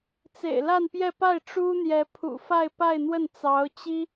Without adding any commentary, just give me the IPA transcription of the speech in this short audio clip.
t͡s ḛ˨˩ ɪ̯ l a˥˧ n p j ɛ˥˧ p a˥˩ ɪ̯ ʈ͡ʂ u˥ n̪ j ɛ˧˥ pʰ ṵ˨˩ f a˥˧ ɪ̯ p a˥˧ ɪ̯ n̪ w ə˥˩ n t͡s ɑ˧˥ ʊ̯ t͡ɕ i˥

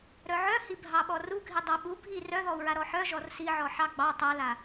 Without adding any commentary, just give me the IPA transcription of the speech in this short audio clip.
ɾ œ ʕ œ h i bʱ ɑ ɓ ɔ r u ɡʱ i dˤ a ɓ u bʱ i r œ ð ɔ u̯ ɹ a ɾ ɔ ħ œ ʒ ɔ r s i ʕ ɔ ħ ɑ ɡ͡b ɑ tˤ a l a

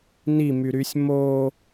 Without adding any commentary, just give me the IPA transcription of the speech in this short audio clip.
n i m y ɾ y sʲ m o

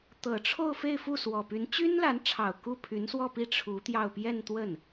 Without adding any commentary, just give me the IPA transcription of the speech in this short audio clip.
t̪ ɤ˨˩ ʈ͡ʂʰ o˥˧ ʊ̯ f e˥˧ ɪ̯ f u˥˩ s w ɔ˨˩ p y˧˥ n t͡ɕ y˥ n l a˧˥ n ʈ͡ʂʰ ɑ˨˩ ʊ̯ k u˥˩ pʰ y˧˥ n s w ɔ˥˧ p i˥˩ ʈ͡ʂʰ u˧˥ t̪ j ɑ˥˧ ʊ̯ p j ɛ˥˧ n t̪ w ə˥˩ n

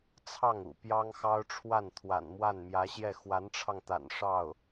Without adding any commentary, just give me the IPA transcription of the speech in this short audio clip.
t͡sʰ ɑ˥˩ ŋ ṵ˨˩ p j ɑ˥ ŋ x ɑ˥ ʊ̯ ʈ͡ʂʰ w a˥˩ n t̪ʰ w a̰˨˩ n m w a˥˩ n m j ä˧˥ ɕ j ɛ˥˩ x w a˧˥ n ʈ͡ʂʰ ɑ˧ ŋ t̪ a̰˨˩ n ʂ ɑ˥˩ ʊ̯

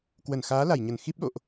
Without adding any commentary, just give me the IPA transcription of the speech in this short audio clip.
k w ə˧˩ n x aː˨˦ l a˧˩ j ɲ ə˧˩ n x i˦˥ p̚ ɗ o̰˧˨ ʔ

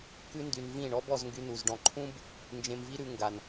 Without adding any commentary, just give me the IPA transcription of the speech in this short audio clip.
k ʉ˦ n d y˧ n v ĩ˦˨ ɳ ɔ˦ b ɔ˧ z ŋ ɡ y˦ n u˧ z ɖ ɔ̃˧ ǃʰ ũ˦ b | n d͡ʒ ẽ˧ m v i˦ ɾ ʉ˧ ŋ ɡ a˨ n

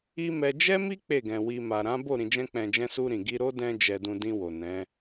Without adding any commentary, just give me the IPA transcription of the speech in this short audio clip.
i˦ m ɛ˧ d͡ʒ ɛ˦ m i˦ k͡p e˦˨ ɡ ɛ̃˨ w i˧ m a˨ ɾ ã˨˦ b o˦˨ ɾ ĩ˧ d͡ʒ ɛ̃˦ k͡p ɛ̃˧ d͡ʒ ɛ̃˦ s u˧ ɾ ĩ˨ ɡ i˧ ɾ o˦ d ɛ̃˦ d͡ʒ ɛ˧ d ũ˧ d ĩ˧ w o˨ n ɛ̃˨˦

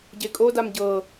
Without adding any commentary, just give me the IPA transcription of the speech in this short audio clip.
ɟ e kʼ o d a m ɟ ɤ

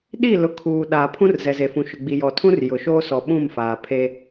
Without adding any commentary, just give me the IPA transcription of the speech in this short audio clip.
ɗ i˦˨ l ʊ˨ kʰ uː˨ ɗ a˨ pʰ ũ˦ r z ɛ˨ z e˨ f ũ˨ ʃ ʊ˨ ɡ͡b i˨ j ɔ˨ tʰ ũ˦ r j ʊ˨ ʃ oː˦ s ɔ˨ ɓ ũ˦˨ m f aː˨ pʰ e˦

